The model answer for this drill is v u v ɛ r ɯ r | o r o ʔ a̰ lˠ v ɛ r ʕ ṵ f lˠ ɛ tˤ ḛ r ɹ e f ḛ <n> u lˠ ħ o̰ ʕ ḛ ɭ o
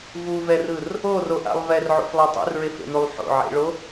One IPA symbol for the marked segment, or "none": n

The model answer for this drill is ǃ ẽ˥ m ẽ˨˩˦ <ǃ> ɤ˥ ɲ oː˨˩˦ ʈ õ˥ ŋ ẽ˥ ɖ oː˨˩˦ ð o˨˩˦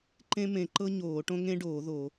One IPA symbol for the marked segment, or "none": ǃ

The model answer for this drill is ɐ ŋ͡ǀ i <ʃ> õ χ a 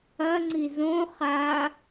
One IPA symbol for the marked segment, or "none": z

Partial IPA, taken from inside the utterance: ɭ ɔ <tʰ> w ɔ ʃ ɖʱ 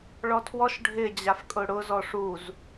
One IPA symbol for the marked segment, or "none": tʰ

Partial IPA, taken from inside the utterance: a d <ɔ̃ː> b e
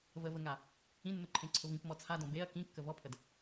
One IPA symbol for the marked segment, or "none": ɔ̃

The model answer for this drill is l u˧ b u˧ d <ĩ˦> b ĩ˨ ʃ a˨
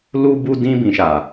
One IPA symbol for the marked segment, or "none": ĩ˧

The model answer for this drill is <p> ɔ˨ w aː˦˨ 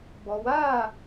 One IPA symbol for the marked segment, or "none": b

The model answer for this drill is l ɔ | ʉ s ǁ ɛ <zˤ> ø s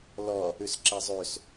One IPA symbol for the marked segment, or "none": zˤ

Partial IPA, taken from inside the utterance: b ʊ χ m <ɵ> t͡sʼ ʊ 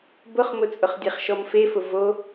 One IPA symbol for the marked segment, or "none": ʊ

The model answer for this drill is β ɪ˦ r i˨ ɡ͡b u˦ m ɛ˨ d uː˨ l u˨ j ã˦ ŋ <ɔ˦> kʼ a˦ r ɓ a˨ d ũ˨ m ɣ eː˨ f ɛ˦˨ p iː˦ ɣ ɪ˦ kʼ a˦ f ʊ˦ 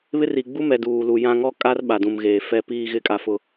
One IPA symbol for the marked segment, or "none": ɔ˦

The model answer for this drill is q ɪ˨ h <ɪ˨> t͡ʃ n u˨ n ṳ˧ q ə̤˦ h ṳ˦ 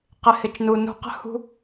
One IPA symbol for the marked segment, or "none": ɪ˨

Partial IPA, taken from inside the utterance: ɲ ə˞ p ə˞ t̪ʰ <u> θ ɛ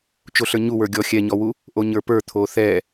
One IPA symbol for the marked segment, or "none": o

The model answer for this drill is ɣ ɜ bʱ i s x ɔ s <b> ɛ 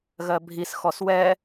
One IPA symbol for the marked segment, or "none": w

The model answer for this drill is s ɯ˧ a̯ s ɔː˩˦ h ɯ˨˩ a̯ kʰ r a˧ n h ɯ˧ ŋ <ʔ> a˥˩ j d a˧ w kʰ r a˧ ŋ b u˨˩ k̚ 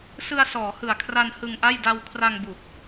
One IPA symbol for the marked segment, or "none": ʔ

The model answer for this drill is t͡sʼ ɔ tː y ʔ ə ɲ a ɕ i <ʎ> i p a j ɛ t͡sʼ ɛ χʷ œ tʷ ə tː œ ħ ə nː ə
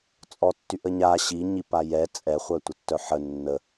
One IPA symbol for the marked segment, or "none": ɲ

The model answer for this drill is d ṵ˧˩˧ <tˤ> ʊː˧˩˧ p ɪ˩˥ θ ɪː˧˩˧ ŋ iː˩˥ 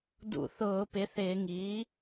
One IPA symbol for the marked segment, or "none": θ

